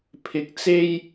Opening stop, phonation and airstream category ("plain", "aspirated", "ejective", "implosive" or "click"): aspirated